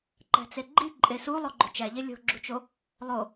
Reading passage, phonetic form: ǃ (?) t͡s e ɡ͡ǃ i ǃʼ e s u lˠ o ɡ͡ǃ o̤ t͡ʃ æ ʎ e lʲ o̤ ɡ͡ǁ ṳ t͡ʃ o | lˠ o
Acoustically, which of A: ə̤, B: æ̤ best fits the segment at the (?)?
B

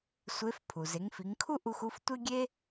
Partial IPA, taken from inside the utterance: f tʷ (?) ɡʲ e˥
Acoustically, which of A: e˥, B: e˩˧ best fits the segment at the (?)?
A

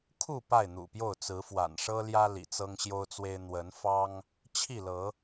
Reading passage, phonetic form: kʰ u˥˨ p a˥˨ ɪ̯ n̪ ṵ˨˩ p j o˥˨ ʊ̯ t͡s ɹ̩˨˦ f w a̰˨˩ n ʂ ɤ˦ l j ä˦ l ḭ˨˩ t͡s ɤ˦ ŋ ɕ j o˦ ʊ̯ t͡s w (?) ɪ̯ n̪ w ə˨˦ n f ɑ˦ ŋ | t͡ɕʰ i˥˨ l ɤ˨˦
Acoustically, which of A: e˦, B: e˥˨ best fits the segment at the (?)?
A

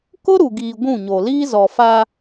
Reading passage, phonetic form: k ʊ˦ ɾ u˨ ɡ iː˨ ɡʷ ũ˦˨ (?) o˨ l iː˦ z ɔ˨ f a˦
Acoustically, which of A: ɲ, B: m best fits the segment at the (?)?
A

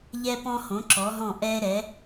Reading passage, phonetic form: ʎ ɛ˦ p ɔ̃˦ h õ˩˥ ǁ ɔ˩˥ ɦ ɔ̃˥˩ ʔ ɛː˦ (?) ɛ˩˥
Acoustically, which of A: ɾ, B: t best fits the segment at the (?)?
A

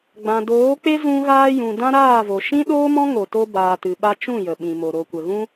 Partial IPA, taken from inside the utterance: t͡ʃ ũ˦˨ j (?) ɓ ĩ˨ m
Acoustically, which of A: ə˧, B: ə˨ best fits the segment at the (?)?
B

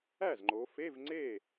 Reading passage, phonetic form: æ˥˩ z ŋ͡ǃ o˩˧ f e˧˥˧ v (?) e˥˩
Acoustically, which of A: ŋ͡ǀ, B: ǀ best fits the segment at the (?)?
A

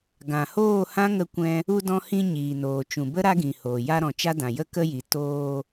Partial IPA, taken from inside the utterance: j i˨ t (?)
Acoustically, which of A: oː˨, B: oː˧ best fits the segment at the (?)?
B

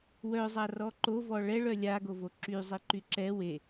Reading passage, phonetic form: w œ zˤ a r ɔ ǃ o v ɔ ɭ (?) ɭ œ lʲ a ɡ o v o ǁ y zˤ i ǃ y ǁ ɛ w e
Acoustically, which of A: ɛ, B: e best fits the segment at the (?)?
A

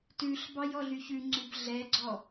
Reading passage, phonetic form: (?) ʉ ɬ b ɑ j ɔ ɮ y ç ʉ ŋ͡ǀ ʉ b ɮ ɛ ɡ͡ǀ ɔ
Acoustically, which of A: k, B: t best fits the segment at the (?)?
B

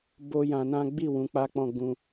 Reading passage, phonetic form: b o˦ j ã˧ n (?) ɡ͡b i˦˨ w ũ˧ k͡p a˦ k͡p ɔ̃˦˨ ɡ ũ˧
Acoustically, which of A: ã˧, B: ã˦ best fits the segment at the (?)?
B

